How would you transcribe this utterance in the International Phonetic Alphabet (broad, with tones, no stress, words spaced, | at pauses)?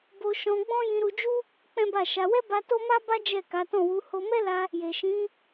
bo˧ʃɔ̃˧ɡ͡bɔ̃˦ jĩ˧ɾu˧d͡ʒu˦ | k͡pɛ̃˦ba˦˨ʃa˧ wɛ˦ba˧ to˦ma˦ba˦ d͡ʒɛ˦˨ka˨˦tɔ̃˦˨ wu˨˦ ho˧mɛ˦la˧ | je˨ʃĩ˨˦